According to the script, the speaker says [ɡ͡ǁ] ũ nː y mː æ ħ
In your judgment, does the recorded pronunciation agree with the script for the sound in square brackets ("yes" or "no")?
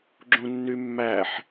yes